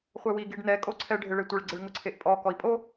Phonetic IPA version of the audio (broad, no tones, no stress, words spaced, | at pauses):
χʷɛwi ɡiɖnɛ kʼoǀʰɛ ɖʱɪɭetʷɪɭ ɡ͡ǀɪɭŋʊǀʰeʔpʼɔ kɔi̯pʼo